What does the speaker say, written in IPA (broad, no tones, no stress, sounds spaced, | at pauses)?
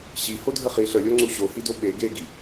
ɕ i h o dʱ ə χ i ɬ ə lʲ o ŋ͡ǀ u ɕ o h i d o ɓ e ɡ e ɡ i